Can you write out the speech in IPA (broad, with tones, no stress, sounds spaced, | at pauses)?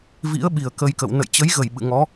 v ḭ˧˥ ə̯ ɓ i˨˩ ə̯ k ə˧ j k ə̰˧˨ w n ə̰˧˨ j t͡ɕ ə˨˦ j ɣ ə˧˩ j ɓ ɨ̰˧˨ ŋ ɔ˨˦